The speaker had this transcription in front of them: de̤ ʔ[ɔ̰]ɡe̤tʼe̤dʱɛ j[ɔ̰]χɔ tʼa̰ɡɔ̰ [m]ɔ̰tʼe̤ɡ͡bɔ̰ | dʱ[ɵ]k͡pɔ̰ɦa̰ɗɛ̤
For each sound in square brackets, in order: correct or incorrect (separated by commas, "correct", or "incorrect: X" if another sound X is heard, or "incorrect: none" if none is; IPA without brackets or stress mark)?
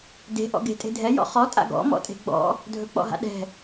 correct, correct, correct, correct